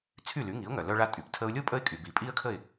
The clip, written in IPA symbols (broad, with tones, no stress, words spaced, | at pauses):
t͡sʰy˥˩ly˩˥ŋi˩˥ʊ̯ŋœ˩ lœ˧ɭa˧tʼy˩p tʰə˧ʊ̯lʲo˥ pʼə˥ɪ̯kʼy˩bi˩ pʼi˥ə̯kʰə˥˩ɪ̯